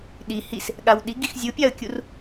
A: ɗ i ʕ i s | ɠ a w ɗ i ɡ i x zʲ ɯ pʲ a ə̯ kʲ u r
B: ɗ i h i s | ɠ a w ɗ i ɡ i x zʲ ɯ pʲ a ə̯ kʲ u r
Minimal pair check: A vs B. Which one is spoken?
B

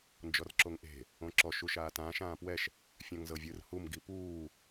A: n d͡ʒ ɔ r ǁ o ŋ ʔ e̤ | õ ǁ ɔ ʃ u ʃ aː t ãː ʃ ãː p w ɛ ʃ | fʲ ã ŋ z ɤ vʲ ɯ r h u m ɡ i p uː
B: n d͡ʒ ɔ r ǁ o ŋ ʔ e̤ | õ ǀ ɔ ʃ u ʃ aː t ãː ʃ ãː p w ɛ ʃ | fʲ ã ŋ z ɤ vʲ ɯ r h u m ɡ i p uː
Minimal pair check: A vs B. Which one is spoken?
A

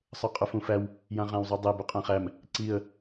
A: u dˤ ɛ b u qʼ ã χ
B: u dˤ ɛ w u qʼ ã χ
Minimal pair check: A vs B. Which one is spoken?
A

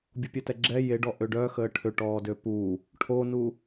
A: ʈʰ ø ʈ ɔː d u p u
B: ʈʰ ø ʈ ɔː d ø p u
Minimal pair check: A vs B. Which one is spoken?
B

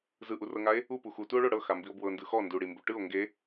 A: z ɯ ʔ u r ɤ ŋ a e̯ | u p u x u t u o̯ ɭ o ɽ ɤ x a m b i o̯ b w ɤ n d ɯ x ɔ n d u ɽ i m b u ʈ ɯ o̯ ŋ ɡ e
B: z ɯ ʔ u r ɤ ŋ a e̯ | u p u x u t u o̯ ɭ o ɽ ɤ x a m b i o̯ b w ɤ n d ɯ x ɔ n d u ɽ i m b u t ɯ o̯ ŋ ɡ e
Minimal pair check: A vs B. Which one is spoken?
A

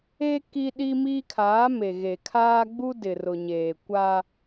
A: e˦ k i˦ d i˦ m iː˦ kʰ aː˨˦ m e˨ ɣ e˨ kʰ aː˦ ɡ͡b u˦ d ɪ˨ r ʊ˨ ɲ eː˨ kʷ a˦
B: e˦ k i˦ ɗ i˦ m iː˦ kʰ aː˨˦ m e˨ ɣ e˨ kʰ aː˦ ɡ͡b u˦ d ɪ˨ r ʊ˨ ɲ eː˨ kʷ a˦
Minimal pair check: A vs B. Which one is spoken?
B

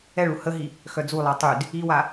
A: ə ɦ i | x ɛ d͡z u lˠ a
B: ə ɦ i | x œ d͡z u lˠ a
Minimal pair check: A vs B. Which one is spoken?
B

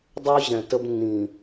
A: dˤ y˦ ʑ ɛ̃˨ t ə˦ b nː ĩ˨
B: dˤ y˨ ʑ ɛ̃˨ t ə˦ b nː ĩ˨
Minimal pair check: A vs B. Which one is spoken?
A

